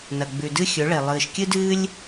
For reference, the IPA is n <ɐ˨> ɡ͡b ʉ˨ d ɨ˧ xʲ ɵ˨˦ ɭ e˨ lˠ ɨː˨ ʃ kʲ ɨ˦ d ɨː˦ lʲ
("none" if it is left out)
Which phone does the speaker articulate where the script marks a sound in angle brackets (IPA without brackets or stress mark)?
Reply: ɐ˨